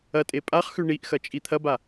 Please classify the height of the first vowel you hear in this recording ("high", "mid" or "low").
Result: low